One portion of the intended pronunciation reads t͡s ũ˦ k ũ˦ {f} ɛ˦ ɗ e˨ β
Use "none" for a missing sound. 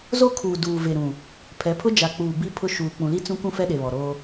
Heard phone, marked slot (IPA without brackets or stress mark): f